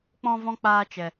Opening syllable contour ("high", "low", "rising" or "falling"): high